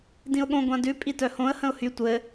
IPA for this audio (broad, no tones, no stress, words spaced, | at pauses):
dĩʊ̯ɠõ ɡʷãdʉ pʼitœhõə̯ hə̃ʊ̯hy tʷɘː